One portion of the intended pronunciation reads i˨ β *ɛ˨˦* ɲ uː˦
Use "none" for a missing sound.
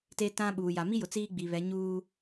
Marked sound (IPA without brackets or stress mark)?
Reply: ɛ˨˦